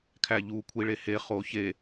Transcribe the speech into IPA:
kʰ æ ʎ u kʷʰ i ɭ e h e χ o ç e

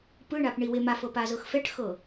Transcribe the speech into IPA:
p ɯ ɳ a p ɳ i w e m a f ɤ p a z ɤ x f ɛ ʈ x ɤ

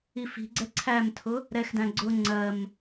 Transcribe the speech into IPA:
i f i̤ ɡ͡ǀ ɛ ǀʰ æ m tʰ ʊ | ɾ ɛ x d æ̃ ɡ͡ǀ ʊ ŋ͡ǀ ɜ m

